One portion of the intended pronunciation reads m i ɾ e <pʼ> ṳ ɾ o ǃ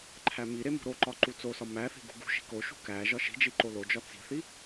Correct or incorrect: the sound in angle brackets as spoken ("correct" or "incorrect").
incorrect